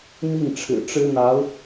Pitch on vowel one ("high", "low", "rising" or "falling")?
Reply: falling